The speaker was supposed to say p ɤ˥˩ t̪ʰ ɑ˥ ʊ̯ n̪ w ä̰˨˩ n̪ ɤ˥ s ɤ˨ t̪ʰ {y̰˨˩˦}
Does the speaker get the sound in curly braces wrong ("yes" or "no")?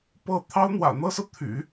no